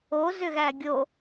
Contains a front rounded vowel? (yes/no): yes